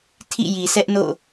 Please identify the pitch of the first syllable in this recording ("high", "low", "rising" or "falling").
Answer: falling